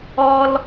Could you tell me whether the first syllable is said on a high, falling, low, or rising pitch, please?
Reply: low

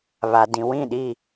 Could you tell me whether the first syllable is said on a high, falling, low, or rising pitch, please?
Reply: low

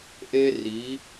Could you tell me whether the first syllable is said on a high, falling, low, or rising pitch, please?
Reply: high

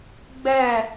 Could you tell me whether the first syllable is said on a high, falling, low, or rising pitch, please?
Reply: falling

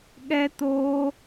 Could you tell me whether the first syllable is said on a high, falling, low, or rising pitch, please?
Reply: high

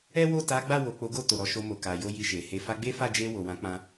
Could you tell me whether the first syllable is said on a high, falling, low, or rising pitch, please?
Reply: high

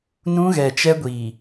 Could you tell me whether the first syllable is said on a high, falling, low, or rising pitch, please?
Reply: high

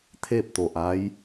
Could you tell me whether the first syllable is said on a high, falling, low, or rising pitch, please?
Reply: falling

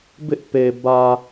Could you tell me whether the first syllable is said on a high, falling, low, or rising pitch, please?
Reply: high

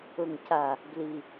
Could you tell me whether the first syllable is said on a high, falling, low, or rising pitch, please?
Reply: low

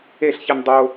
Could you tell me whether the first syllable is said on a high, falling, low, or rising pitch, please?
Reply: falling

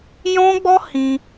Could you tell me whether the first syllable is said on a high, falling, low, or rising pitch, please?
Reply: high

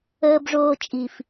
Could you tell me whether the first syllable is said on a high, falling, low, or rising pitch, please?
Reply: high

